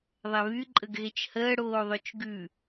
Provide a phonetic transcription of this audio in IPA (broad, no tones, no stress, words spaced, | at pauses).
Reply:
ðˤɛβy ǃʼəɡɣet͡ʃhəː ɽoːðˤøt͡ʃɡʉ